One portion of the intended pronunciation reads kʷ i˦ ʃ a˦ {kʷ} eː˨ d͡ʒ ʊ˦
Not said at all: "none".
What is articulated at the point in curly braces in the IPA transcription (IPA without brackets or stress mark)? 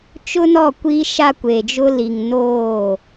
kʷ